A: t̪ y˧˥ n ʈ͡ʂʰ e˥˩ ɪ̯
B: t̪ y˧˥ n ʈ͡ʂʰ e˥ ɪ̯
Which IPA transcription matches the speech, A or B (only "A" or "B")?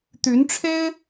B